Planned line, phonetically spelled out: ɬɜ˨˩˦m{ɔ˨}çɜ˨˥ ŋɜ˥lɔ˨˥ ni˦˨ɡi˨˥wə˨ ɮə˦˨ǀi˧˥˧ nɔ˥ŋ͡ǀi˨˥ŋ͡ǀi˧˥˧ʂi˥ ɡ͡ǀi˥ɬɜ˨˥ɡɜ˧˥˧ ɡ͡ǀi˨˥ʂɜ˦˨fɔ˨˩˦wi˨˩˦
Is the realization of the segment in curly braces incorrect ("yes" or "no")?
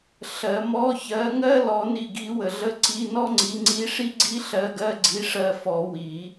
yes